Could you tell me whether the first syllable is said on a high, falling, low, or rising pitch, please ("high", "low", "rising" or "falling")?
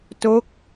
falling